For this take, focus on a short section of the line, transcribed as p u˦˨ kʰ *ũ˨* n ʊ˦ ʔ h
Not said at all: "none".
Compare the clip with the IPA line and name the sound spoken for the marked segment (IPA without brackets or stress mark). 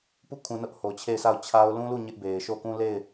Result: ũ˨